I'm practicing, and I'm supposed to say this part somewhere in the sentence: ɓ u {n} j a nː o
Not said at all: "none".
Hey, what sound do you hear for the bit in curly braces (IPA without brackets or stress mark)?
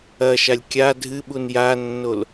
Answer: n